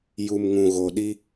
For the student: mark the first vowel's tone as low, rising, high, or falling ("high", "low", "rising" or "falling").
low